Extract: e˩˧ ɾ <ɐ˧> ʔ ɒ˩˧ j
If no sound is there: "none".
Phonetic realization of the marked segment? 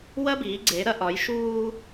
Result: ɐ˧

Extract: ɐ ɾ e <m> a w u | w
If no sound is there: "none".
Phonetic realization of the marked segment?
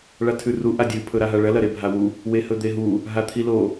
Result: bʱ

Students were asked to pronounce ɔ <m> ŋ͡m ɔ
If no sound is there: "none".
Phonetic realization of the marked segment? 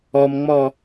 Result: m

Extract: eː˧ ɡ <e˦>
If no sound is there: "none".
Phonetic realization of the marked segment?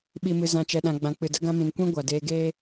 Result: eː˦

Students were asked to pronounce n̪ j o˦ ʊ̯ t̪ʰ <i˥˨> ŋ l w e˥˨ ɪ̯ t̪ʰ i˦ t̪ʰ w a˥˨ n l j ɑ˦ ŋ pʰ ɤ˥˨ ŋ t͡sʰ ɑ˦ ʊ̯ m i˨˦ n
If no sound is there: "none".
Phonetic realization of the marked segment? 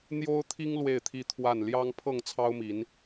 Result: i˦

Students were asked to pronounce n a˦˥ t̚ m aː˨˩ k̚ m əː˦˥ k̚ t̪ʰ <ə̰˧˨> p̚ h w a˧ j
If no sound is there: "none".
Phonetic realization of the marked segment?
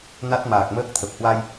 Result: ə˨˩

